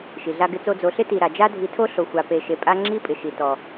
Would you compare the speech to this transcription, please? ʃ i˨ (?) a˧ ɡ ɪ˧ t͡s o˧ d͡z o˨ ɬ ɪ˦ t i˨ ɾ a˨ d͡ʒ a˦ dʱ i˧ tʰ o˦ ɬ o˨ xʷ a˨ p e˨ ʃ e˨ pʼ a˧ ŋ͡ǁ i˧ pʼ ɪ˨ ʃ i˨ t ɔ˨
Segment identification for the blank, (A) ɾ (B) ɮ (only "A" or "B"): B